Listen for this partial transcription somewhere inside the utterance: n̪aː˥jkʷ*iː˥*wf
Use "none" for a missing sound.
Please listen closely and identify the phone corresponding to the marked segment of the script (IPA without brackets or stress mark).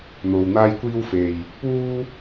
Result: iː˥